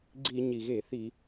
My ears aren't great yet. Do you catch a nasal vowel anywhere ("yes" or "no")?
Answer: no